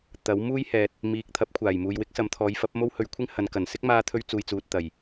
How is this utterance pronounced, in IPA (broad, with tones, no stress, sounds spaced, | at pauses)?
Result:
t̪ ɐ˨˥ w m uː˥ j h ɛː˨ t̚ | m iː˨ k̚ t̪ʰ ɐ˨˥ p̚ kʷʰ aː˨˩ j m uː˨ j w ɪ˥ k̚ s ɐ˨˥ m t̪ʰ ɔː˨˧ j f ɐ˨˥ p̚ m o˥ w h ɵ˧ ɥ kʷʰ ɪ˥ ŋ h ɐ˨˧ n k ɐ˨˩ n s ɪ˥ k̚ m aː˧ t̪ʰ ɵ˧ ɥ t͡s uː˨ j t͡s uː˨ t̚ t̪ ɐ˨˩ j